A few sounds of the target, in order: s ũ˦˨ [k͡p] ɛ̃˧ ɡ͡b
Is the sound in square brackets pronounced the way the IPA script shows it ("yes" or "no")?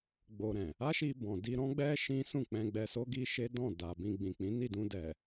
yes